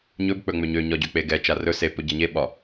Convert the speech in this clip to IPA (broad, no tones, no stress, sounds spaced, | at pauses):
ɲ ɵ b k͡p ɵ ŋ͡m ø ɲ ø ɲ ɒ ɟ ø k͡p e ɡ ɛ t͡ʃ a r ɵ s e p ɵ ɟ a ɲ e ɓ ɒ